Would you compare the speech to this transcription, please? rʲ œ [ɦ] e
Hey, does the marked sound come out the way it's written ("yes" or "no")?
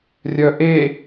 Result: no